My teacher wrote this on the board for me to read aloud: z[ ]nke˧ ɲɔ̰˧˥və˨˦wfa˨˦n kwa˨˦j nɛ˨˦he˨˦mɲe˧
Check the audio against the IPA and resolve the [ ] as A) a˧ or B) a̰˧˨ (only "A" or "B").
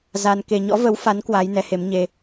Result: A